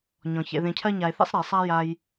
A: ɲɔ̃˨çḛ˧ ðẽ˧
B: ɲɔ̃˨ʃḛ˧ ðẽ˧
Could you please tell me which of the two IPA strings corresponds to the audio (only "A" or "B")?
A